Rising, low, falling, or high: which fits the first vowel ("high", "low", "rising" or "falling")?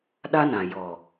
high